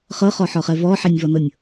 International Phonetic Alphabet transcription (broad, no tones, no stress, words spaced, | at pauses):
χɤχɔħɔχɛ vɔħɛnʲvɔnɤnʲ